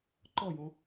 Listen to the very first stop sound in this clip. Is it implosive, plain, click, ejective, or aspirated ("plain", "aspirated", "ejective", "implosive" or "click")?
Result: click